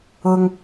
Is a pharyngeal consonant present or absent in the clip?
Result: absent